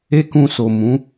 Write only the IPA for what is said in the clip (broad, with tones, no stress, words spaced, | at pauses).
e˦kũ˧so˨ mũ˨˦